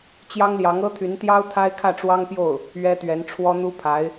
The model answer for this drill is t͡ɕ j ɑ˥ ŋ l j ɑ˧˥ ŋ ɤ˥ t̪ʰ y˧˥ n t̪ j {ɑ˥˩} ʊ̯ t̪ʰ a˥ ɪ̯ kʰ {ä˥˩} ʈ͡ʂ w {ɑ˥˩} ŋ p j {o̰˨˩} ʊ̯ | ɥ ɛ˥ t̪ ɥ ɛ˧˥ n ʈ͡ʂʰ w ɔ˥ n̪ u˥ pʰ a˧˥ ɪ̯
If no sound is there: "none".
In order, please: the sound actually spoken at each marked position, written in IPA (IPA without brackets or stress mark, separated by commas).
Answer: ɑ˥, ä˥˩, ɑ˥, o˥˩